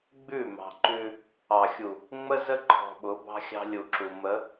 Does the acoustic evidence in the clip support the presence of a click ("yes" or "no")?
yes